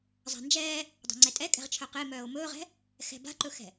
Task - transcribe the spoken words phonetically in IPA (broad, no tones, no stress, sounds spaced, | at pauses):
zˤ a̤ n d͡ʒ ɛː | dˤ a̤ ŋ͡ǀ ɛ tʼ ɛ kʼ ɛ̤ ʁ t͡ʃʰ œ q e m œː o̯ m ɵː ʁ ɛ̤ | x ɛ̤ b a̤ ǃ ɵ x ɛ̤